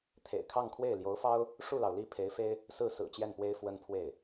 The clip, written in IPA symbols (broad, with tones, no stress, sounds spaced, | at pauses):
t̪ʰ ḛ˨˩ ɪ̯ kʰ ɑ˥˧ ŋ kʰ w e˥˩ ɪ̯ l j o˧˥ ʊ̯ f ɑ˥ ʊ̯ | ʂ u˥˩ l ɑ˩ ʊ̯ l i˥˩ pʰ e˧˥ ɪ̯ f e˥ ɪ̯ | s ɹ̩˥˩ s ɹ̩˨˩ t͡ɕ j ɛ˥˩ n p w e˥ ɪ̯ f w ə˥ n pʰ w e˥˩ ɪ̯